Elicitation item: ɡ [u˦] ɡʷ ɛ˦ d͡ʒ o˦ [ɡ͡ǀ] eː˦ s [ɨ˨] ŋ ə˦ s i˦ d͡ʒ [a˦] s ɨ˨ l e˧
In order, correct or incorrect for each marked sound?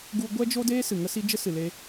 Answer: correct, incorrect, correct, incorrect

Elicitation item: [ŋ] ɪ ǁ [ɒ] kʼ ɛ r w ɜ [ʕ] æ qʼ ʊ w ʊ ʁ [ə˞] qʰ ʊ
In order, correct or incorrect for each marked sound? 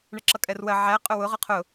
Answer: incorrect, incorrect, correct, incorrect

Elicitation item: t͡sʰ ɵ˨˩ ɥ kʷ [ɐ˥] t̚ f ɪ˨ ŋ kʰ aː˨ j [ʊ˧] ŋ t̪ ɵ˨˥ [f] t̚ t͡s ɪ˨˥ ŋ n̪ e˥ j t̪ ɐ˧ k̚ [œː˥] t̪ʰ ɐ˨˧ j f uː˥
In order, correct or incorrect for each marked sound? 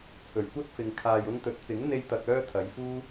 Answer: correct, correct, incorrect, correct

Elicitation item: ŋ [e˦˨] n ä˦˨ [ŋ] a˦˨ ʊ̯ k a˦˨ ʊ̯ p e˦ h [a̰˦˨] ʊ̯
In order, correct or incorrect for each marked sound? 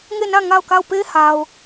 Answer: correct, correct, incorrect

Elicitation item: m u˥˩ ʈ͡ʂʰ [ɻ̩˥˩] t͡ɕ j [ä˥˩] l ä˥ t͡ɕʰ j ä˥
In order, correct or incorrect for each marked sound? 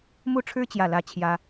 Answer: incorrect, correct

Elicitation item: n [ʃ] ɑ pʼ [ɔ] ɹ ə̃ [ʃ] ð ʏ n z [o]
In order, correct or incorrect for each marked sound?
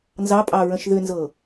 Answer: incorrect, incorrect, correct, incorrect

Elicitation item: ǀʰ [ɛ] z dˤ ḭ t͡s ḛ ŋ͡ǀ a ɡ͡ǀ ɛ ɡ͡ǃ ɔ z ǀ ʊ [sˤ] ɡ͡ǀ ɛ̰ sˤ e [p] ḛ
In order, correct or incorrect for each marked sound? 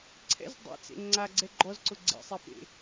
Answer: incorrect, incorrect, correct

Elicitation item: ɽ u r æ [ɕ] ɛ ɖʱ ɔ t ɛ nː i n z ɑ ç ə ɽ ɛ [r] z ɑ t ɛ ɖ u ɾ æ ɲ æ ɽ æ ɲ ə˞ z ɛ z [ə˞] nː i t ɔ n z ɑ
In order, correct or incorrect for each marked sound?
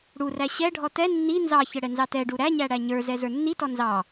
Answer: correct, incorrect, correct

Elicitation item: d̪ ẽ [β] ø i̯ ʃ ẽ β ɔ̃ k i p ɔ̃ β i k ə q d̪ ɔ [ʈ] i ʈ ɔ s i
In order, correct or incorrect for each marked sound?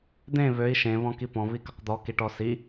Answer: correct, incorrect

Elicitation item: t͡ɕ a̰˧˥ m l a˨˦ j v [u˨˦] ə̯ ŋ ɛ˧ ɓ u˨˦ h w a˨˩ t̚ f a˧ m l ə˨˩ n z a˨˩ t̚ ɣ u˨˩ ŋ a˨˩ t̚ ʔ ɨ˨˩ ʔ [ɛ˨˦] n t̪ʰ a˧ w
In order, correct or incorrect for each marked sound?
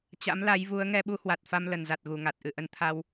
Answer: correct, incorrect

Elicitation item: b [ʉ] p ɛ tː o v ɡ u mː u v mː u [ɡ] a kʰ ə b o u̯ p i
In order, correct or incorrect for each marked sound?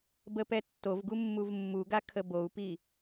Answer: incorrect, correct

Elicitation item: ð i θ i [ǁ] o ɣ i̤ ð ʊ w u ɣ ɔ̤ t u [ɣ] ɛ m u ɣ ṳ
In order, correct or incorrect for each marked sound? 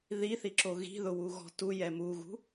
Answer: correct, incorrect

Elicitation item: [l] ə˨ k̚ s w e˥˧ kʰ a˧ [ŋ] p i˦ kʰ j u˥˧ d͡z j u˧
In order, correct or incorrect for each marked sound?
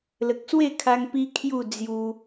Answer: correct, correct

